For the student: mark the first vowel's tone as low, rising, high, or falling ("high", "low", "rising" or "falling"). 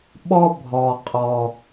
high